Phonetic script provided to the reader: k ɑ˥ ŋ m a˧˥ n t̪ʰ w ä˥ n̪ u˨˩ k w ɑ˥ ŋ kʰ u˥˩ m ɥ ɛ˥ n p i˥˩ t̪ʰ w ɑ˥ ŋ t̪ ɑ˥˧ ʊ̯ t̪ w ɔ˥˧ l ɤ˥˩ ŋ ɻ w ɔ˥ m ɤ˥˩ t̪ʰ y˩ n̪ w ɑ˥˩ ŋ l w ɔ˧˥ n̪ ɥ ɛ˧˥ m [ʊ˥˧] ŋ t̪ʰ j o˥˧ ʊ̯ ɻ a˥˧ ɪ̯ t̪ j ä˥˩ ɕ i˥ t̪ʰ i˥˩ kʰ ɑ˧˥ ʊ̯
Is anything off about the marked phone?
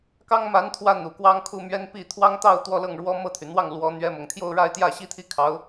yes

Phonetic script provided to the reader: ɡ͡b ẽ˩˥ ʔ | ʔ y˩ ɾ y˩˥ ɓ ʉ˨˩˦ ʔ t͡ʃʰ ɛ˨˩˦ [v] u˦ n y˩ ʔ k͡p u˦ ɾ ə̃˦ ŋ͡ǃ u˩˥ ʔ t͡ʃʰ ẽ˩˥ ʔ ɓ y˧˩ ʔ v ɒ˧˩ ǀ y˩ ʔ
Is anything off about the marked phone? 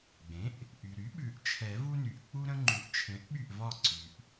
no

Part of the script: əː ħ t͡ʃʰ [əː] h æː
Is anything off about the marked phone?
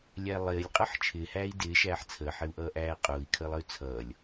yes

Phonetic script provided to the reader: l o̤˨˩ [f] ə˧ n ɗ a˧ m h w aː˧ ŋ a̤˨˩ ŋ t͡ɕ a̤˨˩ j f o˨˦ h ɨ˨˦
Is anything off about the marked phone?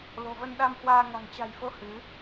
yes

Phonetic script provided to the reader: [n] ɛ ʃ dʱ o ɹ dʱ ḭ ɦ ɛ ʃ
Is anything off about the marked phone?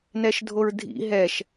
no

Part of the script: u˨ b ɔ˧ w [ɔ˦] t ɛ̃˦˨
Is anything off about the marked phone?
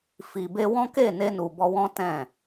yes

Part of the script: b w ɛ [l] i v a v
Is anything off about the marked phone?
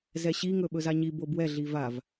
yes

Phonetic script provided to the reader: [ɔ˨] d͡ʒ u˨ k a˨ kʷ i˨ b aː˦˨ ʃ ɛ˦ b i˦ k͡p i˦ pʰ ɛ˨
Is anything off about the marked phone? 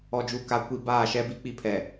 no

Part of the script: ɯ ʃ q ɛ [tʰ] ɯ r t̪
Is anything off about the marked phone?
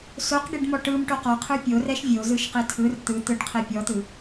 no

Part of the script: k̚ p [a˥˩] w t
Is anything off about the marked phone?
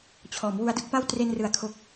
no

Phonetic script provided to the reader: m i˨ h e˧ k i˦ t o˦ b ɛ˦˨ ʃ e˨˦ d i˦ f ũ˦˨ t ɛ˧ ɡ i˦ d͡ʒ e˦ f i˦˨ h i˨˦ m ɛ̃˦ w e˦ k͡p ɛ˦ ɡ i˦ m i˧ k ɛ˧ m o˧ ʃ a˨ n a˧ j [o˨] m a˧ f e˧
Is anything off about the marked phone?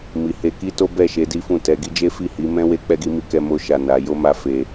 yes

